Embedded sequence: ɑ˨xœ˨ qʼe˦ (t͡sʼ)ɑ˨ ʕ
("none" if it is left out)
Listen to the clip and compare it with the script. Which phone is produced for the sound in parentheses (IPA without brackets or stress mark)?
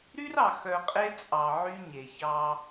t͡sʼ